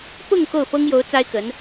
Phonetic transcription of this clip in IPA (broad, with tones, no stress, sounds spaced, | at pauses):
p ʊ˥˧ ŋ k o˥˩ ʊ̯ f ɤ˥ ŋ j o˧˥ ʊ̯ t͡s a˥ ɪ̯ k ə˧˥ n